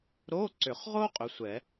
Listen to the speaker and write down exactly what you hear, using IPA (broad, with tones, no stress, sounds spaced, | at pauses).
ɾ o˧˥˧ ǀ ʏ˨˩˦ χ ʁ o˥ qʼ ʏ˨˥ sʷ ɛ˨˩˦